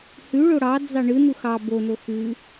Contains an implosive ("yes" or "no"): no